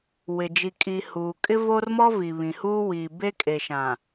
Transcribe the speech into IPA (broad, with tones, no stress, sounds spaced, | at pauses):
w ɪ˨ d͡ʒ i˨ kʼ i˨ h uː˨ kʼ ɪ˦ v o˦ r m ɔ˦ v i˨ β ĩ˨ h uː˦ w iː˨ b e˦ kʼ e˨ ʃ ã˨